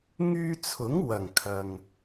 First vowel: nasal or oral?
oral